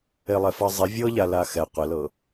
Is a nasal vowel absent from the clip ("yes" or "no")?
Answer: yes